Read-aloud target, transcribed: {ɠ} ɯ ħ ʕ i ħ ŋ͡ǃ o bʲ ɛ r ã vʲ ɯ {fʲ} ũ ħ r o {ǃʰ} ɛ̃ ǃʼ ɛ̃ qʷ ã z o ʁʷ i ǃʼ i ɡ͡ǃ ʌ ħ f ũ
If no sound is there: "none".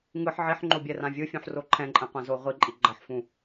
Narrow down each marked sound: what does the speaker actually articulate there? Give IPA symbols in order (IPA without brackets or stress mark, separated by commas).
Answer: ŋ, fʲ, ǃʰ